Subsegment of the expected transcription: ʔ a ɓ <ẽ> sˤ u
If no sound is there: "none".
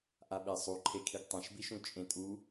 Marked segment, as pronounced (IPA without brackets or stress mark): e